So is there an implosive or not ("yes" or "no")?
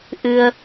no